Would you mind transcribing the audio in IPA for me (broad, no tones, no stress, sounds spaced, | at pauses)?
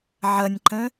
ʕ ʌ nʲ ǃ ə̃